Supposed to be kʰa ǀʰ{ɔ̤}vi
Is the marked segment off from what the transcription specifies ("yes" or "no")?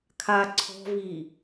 no